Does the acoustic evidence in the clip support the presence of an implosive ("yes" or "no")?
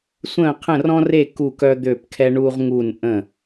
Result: no